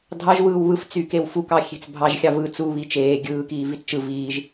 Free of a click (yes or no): yes